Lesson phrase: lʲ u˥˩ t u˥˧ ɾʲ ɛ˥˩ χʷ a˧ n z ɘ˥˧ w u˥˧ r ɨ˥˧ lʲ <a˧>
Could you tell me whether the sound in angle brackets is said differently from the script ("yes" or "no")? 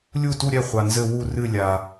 no